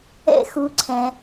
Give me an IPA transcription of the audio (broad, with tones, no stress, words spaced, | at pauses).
ɛ̰˦xu˨ ǀʰɛ̃˩